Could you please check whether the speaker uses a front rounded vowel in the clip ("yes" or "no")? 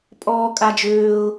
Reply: yes